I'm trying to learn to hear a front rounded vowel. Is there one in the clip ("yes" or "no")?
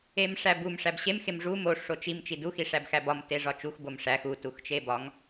no